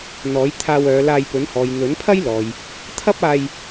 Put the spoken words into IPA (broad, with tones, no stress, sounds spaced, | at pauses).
n̪ ɔː˨˥ j t̪ʰ aː˧ w œː˨˧ l aː˧ j p ɵ˨˥ n h ɔː˨ j n̪ ɵ˨˥ n pʰ ɐ˥ j l ɔː˨ j | t̪ʰ ɐ˥ p̚ aː˧ j